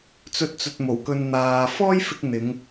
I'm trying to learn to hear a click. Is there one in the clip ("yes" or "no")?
no